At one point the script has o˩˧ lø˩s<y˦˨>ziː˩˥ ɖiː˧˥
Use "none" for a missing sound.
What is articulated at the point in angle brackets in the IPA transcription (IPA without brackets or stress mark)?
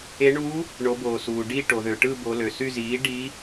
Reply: y˦˨